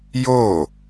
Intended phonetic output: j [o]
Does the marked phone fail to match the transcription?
no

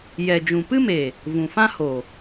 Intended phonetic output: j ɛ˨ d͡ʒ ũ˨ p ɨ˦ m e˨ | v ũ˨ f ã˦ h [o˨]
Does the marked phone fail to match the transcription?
no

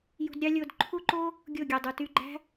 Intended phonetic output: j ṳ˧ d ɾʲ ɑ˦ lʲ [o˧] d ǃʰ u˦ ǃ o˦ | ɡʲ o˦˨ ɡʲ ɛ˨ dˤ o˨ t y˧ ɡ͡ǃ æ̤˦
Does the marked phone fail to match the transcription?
no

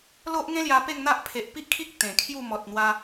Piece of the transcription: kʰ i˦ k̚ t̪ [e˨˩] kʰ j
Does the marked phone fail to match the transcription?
yes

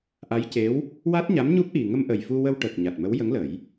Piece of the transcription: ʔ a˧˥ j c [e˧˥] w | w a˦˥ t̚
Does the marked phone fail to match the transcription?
no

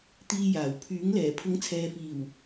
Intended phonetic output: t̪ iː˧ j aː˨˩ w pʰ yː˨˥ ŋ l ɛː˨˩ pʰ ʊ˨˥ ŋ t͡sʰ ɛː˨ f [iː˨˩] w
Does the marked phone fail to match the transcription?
no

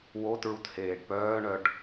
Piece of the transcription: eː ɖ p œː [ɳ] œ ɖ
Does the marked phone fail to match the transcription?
no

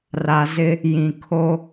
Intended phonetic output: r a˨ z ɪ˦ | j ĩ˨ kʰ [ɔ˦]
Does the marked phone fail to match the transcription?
yes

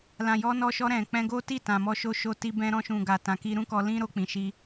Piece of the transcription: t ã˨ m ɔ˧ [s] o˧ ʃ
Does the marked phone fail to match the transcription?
yes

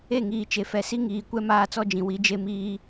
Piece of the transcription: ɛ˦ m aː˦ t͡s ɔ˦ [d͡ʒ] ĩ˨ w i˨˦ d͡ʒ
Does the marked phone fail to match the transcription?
no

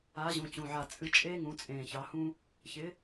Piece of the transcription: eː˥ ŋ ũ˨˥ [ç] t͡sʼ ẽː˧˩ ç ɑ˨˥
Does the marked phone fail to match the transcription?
yes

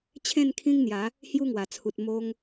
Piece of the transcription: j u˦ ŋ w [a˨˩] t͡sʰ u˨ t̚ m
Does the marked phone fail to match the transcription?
no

